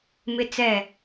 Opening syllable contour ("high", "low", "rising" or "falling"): high